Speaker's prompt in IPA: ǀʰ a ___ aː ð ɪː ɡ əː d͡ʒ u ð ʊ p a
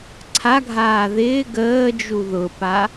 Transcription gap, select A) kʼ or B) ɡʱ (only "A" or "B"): B